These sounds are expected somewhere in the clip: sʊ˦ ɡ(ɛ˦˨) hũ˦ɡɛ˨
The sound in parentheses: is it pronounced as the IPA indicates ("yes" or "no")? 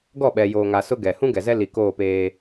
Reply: no